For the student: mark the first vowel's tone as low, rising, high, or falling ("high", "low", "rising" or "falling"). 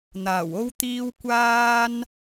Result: low